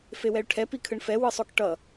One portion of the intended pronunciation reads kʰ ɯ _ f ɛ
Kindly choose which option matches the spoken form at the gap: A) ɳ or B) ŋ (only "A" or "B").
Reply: A